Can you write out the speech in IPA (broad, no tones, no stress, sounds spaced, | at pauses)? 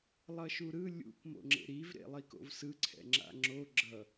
lˠ ʌ ʃ u ɾ ɯ lʲ ṵ k m o̰ ŋ͡ǁ ḛ ɾ i v ɾ ḛ lˠ i k o̰ v s ɯ ǀʰ ɛ̰ ŋ͡ǁ a̰ ŋ͡ǁ o ɡ͡ǁ ʌ